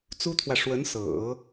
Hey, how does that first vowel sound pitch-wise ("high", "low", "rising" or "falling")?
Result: high